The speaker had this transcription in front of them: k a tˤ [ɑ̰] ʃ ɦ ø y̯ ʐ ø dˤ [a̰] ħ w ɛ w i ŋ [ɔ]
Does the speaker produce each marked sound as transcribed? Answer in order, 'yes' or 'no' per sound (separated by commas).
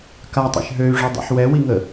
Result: no, yes, no